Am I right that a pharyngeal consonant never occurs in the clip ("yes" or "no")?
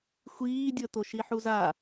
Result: no